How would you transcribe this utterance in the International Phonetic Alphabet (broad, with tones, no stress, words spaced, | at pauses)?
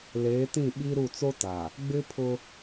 leː˨˦tĩ˦˨ ɓi˦ɾu˦˨ t͡so˦ta˨ | ɡ͡bɪ˦pʰʊ˦